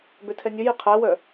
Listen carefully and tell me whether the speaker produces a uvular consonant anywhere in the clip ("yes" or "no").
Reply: yes